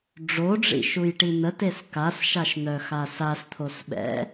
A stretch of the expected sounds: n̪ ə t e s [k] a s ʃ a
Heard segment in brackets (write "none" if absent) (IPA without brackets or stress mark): k